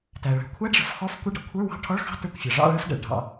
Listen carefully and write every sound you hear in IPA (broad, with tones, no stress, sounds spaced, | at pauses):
t æ˩ ɭ ə̤˩ ɭ kʷʰ æ˧˥˧ ɖ ʐ ə̤˩ f x ɔ˧˥˧ f kʷ ə˧˥˧ ɖ ʌ˩ kʷʰ ə˞˧˥˧ w ɑ̤˧˥˧ ʈʰ ɔ˧˥˧ ɭ x ɑ̤˧˥˧ t ə˞˧˥˧ kʷ fʲ ɑ˩ ʐ ɑ̰˧˥˧ ɭ ə˧˥˧ f ɖ ɛ̰˩ ɭ ɖʱ ɑ̰˩